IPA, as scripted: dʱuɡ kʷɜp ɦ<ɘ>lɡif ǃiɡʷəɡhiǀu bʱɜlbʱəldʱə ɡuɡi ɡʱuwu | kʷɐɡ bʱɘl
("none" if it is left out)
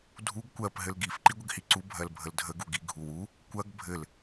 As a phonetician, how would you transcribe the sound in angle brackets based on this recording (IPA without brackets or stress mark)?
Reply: ɘ